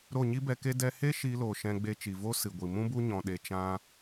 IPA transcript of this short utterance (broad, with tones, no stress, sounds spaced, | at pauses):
ɾ o˦˨ ɲ i˦ b ɛ˧ k e˦ d ɛ˦ h e˦ ʃ iː˧ l oː˨ ʃ ɛ̃˧ ɡ͡b e˧ t͡ʃ i˨ v o˦ s ɨ˨ ɡʷ i˨ m ũ˦ b u˦ ɲ ɔ̃˧ ɗ e˧ t͡ʃ ã˦